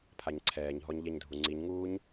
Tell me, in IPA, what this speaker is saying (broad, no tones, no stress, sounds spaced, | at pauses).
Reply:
pʰ a ɲ ǀʰ ɛː ɲ ɦ ɔ ɲ ʎ ɛ ɲ dʱ u ŋ͡ǀ i ɲ ŋ uː ɲ